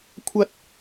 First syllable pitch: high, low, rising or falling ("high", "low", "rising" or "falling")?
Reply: high